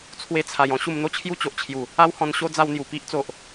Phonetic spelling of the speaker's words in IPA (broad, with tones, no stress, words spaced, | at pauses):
t͡sʰwe˧t͡sʰa˨˩j ɔ̃˦ɕu˧mn̪o˦t͡ɕʰju˦ t͡ɕo˨ʔt͡ɕʰju˨˩ | a˦whɔ̃˧nɕo˦ d͡za˧wn̪ju˨˩ pi˦ʔt͡so˨ʔ